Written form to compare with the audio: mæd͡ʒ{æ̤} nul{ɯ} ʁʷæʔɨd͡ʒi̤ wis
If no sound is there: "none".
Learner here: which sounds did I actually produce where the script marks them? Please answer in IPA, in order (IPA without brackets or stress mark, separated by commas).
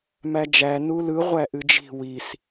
æ, ɯ